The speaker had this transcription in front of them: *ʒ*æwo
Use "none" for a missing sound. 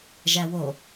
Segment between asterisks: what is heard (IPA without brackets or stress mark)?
ʒ